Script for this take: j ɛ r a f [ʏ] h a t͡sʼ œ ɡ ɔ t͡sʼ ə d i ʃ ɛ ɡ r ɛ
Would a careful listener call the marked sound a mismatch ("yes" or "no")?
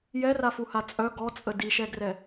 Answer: yes